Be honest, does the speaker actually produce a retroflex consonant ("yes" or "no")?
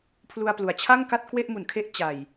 no